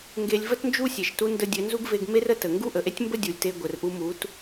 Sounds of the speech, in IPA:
ŋ ɡ e˧ lʲ v ə˦ t n d͡ʒ u˦ sʲ e˨ ʃ t u˧ n d ə˧ dʲ ɘ˨˦ n z u˦ ɡ v e˧ ɡ m e˦ r ə˧ t ə˨ ŋ ɡ u˦ ʔ ə˨ ʔ e˦ tʲ m b ə˦ dʲ u˨ lʲ t e˧ ɡʷ ɘ˨ r ʔ u˧ m u˨˦ t

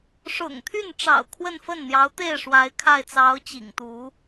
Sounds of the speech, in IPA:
ʂ ʊ̰˨˩ ŋ t̪ʰ y˥˩ n ʈ͡ʂ ɑ̰˨˩ ʊ̯ kʰ w ə˥˧ n f ə˥˩ n n̪ j ɑ˧˥ ʊ̯ t̪ e˥˩ ɪ̯ ʂ w a˧˥ ɪ̯ kʰ a˥˩ ɪ̯ t͡s ɑ˧˥ ʊ̯ t͡ɕ ḭ˨˩ ŋ t̪ u˧˥

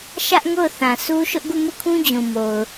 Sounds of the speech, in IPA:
ʃ ä˦ ʔ ŋ o˦˨ ʊ̯ θ ã˨ s u˦ ʃ ʊ˦ ʔ ɡ u˦˨ m u˦˨ kʰ ũ˦ d͡ʑ ũ˨ m o˨ ʊ̯

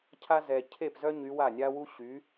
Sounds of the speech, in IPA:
cʰ a˥ z ɛ˨ cʰ e˥˩ p z œ˥ ɲ y˧˥ w a˥˩ nʲ a˥ w u˥ ɕ y˩˥

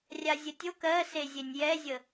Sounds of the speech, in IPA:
rʲ a zʲ ə tʲ o k ɜ s e zʲ e nʲ j ɛ zʲ ə

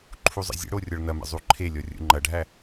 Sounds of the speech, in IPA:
ǃʰ u zˤ ə̰ zʲ ə̰ ɽ o rʲ ɔ ɭ n ɐ m ə̰ zˤ u ǃʰ e lʲ ɔ rʲ ṵ ŋ͡ǃ ɐ ɖʱ æ

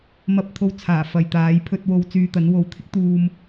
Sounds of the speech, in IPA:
m ɐ˨ p̚ t̪ʰ o˨ w t͡sʰ aː˨˩ f ɐ˨ j t̪ aː˨˥ j pʰ ɵ˧ t̚ w o˧ w t͡s yː˧ t̪ ɐ˨˥ n w o˨˥ w t̪ʰ ɪ˥ k̚ t̪ uː˧ m

